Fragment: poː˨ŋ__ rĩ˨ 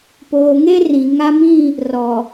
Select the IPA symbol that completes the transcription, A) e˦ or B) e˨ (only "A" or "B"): A